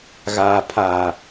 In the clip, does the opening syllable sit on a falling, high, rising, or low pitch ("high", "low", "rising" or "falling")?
low